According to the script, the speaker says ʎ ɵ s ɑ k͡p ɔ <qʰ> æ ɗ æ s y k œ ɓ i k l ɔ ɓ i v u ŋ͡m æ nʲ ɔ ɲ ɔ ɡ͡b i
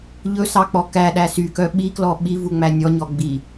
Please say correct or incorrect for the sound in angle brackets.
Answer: incorrect